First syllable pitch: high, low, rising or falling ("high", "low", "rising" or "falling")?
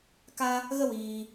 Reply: high